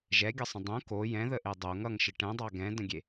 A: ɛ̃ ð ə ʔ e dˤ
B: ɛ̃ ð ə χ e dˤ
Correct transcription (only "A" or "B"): A